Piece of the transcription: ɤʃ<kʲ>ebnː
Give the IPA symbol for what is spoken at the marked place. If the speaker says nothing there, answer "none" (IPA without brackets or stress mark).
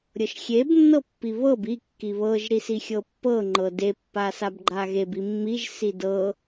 xʲ